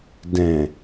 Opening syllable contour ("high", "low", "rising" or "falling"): low